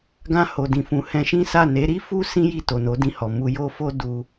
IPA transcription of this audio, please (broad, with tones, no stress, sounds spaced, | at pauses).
ɡ ã˧ h o˨ d ĩ˨ f ũ˨ h ɛ̃˧ ʃ ĩ˦ s a˦˨ n e˨˦ ɾ i˦ f u˦ s ĩ˦ j i˦˨ t o˨ n o˨˦ d ĩ˧ h ɔ˨ m u˧ j o˦ f o˦ d u˧